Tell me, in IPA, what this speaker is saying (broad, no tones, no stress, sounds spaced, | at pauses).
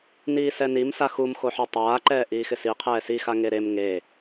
n iː s ɛ n i m s a x u m x o ħ ɔ tˤ aː ǃ ɛː ʔ iː x ɪ s i qʰ ɛː s i x a ŋ e ɾ e m ŋ e